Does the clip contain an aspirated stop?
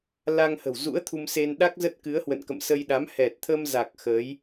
yes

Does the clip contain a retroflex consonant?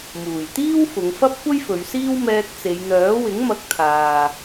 no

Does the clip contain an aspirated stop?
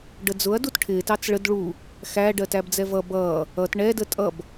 yes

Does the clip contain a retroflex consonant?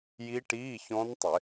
yes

